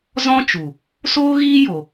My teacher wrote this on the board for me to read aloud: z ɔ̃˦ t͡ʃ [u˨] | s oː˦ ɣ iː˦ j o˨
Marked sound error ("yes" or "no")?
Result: no